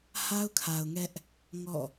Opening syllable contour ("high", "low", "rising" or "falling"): high